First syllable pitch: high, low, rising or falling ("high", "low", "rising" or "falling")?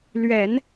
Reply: low